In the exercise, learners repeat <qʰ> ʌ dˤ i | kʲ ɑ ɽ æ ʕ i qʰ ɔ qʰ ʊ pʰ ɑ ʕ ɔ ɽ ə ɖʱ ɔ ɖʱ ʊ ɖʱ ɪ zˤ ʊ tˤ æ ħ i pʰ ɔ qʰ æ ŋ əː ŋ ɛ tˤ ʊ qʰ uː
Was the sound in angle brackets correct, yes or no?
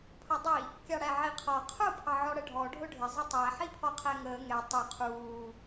no